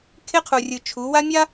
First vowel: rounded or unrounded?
unrounded